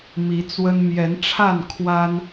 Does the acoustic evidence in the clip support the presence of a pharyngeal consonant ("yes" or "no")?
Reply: no